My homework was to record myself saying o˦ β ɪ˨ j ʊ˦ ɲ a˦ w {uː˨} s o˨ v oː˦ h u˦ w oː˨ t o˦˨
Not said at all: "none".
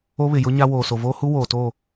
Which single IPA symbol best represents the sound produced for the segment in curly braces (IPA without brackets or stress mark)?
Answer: oː˨